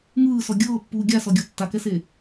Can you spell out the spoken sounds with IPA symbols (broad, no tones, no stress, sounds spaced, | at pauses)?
ŋ ɯː s ɔ ɡʲ ɤː pː uː ɡʲ a s ɔ ɡʲ ɔ tː a k ɛ s e